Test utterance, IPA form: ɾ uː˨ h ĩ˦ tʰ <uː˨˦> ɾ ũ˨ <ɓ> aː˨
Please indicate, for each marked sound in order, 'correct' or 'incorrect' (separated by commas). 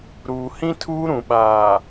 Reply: incorrect, correct